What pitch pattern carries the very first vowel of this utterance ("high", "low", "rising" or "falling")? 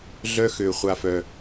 high